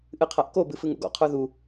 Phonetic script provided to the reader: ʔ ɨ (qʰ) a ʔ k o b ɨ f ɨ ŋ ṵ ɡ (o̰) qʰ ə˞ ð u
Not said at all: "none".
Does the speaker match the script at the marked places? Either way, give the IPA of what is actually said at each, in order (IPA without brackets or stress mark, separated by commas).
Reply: qʰ, ɔ̰